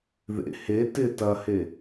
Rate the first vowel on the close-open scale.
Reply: mid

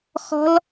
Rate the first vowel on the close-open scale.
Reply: mid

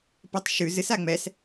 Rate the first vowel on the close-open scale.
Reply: mid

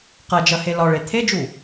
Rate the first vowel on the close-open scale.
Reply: open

